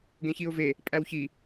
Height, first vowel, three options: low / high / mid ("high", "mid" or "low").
mid